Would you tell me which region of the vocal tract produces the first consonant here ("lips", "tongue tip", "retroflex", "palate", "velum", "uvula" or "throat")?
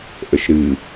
throat